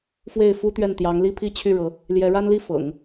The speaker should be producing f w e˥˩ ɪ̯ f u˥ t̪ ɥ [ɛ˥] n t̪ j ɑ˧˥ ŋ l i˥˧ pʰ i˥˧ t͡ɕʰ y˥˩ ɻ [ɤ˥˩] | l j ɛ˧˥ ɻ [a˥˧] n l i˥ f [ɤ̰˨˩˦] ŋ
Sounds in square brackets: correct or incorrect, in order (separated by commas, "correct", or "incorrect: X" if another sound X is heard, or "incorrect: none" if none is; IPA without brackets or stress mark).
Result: incorrect: ɛ˥˩, incorrect: ɤ˧˥, incorrect: a˥, correct